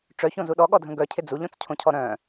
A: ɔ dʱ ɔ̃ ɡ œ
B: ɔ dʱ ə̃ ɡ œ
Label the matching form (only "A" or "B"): B